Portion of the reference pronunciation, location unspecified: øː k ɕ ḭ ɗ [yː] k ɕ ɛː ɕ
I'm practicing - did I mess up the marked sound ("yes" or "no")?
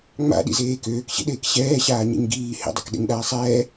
yes